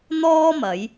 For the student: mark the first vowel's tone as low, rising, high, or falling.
high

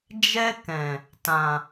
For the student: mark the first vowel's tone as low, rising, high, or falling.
high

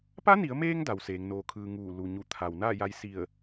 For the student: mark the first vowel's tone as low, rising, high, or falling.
rising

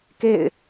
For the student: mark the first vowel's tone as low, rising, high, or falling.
falling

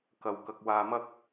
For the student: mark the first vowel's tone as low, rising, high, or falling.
low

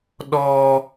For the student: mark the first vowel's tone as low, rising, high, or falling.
high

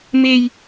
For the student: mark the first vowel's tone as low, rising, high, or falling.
high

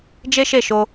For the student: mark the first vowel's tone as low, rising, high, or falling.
high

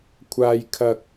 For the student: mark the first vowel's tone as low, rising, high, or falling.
high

